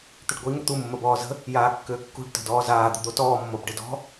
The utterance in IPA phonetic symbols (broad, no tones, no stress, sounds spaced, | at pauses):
t̪ ʏ ɖ ɡʷ i ŋ ʏ t̪ u mː ə b ɔː z ə̤ | j aː kː ʏː kː ṳ ɖ t ə̤ d ɔː z aː d̪ ə̤ d̪ o t ɔː mː o b ɖ ɪ d ɔ̤